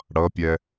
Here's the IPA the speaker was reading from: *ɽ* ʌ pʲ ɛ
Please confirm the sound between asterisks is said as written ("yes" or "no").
yes